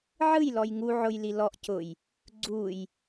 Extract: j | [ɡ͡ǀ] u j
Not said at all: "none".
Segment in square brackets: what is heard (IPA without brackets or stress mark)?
ɡ͡ǀ